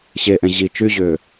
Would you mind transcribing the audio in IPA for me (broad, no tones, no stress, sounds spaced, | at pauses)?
ɕ e ʔ ɛ̃ ʑ i t͡ʃ y ʑ ʏː